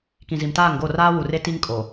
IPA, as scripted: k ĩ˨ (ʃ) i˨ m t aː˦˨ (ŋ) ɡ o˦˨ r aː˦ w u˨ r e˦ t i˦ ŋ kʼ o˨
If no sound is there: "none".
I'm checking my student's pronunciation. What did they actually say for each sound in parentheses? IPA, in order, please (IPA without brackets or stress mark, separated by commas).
z, ŋ